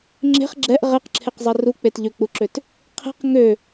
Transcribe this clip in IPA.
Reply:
ŋ͡ǁ e̤ χ ɡ͡ǁ ɛ ʔ ʁ ɛ q ǁʰ e q zˤ ɛ r u k͡p e t ʎ ø k͡p u ǁ ø t | qʰ e̤ q ŋ ø

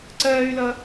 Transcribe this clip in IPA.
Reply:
ǀ ɜː y̯ l ʌ

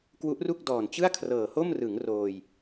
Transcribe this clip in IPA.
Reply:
k w u˦˥ ʔ r u˥˩ k̚ d ɔː˨˩ n t͡ɕ ɯ˥˩ a̯ kʰ r ɤː˨˩ h o˥˩ m r ɯ˩˦ ŋ r oː˧ j

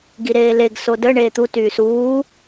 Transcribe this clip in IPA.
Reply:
ɡ i ɾ eː l e ɡ s o d ə ɳ eː t̪ u t yː s uː

